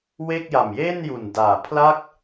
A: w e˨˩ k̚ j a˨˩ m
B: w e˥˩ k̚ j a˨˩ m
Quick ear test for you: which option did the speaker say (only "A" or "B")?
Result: B